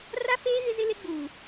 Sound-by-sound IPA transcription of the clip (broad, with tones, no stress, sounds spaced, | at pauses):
r a˦ f eː˦ ɣ ɪ˦ z ɪ˦ l e˦ ɡ͡b uː˨